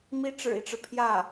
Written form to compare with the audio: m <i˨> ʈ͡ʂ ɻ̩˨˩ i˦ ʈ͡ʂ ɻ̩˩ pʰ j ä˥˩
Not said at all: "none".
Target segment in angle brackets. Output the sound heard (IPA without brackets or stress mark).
i˥